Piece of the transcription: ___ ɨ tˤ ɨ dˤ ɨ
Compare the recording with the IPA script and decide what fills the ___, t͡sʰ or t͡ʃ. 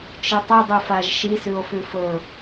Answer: t͡ʃ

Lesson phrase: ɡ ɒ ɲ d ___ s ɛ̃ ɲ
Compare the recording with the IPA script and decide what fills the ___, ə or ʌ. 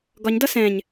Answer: ʌ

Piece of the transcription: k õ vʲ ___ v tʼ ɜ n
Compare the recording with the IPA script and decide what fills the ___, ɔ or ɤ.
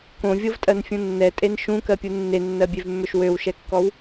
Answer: ɤ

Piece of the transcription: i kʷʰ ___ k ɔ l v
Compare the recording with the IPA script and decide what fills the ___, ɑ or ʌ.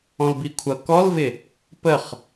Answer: ʌ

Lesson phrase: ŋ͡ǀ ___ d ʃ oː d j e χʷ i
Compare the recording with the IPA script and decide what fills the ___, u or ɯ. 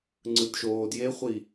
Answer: ɯ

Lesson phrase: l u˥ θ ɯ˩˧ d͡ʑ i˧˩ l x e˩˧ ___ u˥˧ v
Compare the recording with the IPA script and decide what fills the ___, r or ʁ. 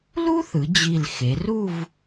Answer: r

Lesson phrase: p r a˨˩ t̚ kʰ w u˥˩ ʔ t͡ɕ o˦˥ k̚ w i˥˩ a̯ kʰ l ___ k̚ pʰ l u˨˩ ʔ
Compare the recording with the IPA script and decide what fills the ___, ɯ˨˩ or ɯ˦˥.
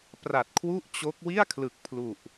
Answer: ɯ˨˩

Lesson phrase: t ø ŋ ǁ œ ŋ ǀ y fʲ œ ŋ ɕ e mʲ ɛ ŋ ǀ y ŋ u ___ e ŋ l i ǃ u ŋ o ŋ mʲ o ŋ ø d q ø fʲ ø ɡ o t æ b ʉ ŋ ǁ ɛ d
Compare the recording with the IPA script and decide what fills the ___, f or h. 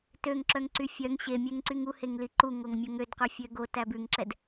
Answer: h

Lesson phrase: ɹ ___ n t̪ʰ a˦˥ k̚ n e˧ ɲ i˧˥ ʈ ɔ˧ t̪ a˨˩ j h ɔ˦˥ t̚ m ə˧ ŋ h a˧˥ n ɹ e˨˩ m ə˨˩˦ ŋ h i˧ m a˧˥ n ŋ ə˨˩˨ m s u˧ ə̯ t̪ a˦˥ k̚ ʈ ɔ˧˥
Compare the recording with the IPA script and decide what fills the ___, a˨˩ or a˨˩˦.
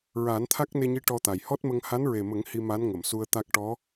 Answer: a˨˩˦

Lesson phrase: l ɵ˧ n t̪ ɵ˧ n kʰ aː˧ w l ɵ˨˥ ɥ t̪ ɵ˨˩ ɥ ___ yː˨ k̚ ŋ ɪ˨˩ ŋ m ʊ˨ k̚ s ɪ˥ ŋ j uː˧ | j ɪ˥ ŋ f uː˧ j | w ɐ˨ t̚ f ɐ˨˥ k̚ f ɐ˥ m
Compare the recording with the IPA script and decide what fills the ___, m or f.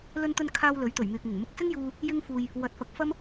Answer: m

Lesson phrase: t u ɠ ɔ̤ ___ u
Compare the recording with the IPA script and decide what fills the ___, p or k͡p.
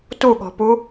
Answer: p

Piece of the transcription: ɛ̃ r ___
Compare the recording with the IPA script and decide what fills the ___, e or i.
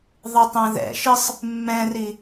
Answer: i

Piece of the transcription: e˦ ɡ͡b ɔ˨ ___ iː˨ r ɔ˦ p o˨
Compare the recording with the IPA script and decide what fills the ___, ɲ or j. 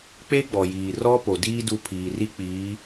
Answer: j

